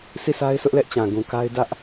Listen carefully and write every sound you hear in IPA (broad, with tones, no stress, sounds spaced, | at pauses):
sʰ i˦˨ s a˦ ɪ̯ s ʊ˦ ʔ l ɛ˦ ʔ t͡ɕ ã˨ ɡ ũ˨ k a˦ ɪ̯ d ä˦ ʔ